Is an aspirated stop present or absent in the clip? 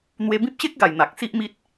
absent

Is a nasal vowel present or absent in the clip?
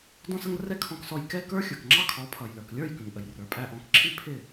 present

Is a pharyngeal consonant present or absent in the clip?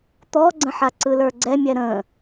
present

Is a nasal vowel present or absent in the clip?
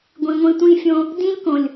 present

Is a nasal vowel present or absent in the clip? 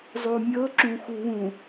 present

